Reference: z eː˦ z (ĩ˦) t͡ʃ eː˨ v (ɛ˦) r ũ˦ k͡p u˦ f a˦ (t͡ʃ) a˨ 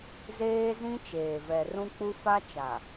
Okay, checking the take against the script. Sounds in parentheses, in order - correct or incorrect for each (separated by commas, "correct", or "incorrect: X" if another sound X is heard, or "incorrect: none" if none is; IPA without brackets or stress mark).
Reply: correct, incorrect: ɛ˨, correct